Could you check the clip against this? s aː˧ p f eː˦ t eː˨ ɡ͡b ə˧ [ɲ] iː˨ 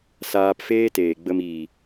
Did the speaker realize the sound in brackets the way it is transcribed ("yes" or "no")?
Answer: no